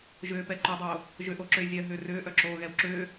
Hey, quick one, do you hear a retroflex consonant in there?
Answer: no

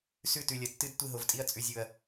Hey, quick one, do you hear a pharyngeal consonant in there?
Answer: no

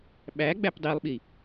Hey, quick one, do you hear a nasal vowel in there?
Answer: no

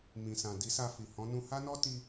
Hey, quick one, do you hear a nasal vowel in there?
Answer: yes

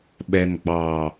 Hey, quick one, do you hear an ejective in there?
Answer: no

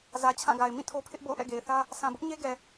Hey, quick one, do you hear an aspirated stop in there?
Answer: yes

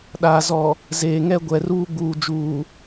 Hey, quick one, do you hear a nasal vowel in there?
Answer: no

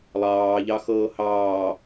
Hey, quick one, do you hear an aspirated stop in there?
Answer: no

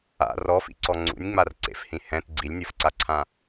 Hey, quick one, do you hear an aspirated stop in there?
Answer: yes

